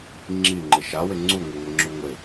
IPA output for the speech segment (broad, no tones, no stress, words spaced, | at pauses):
ŋ͡ǁiŋ͡ǃɪ ʃawɪ ŋ͡ǀuŋʷɪŋʷɪŋ͡ǁu ŋʷɪ